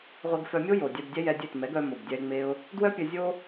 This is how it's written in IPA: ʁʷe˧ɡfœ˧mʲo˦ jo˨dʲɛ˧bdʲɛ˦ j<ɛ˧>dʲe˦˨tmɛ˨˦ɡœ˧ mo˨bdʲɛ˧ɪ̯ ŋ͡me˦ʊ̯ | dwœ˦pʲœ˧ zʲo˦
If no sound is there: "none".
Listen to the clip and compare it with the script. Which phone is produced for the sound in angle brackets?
ɛ˧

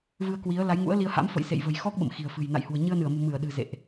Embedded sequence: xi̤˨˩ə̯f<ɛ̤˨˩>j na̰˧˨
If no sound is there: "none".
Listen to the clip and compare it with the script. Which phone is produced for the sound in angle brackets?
ɨ̤˨˩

